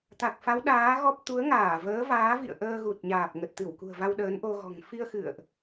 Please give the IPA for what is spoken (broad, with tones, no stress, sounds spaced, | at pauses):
t̪ a˨˩ k̚ f a˨˦ w ɗ aː˨˦ ɣ ɔ˦˥ p̚ t̪ u˨˦ ə̯ ŋ aː˧˩ v əː˨˦ v aː˨˦ v ḭ˧˨ ə̯ ʔ əː˧ ɣ u˨˩ t̚ ɲ aː˨˩ p̚ ŋ ə˨˩ t̚ t̪ ɨ˧˩ w k ṳ˨˩ ə̯ v a˧ w ɗ əː˨˦ n ʔ o˧ ɣ ɔ̤˨˩ ŋ f i˧ ə̯ x ɨ̰˧˨ ə̯ ʔ